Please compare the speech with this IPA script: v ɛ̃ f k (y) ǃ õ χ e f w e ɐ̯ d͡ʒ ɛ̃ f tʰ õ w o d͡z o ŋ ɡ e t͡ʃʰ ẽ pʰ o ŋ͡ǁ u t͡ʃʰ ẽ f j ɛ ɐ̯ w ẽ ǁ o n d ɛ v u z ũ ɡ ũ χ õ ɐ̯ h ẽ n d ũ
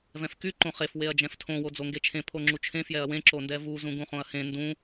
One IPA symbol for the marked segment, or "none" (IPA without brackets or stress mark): y